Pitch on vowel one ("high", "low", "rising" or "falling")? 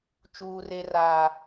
high